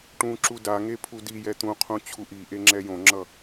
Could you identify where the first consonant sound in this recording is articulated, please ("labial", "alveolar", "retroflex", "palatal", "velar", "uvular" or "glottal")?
retroflex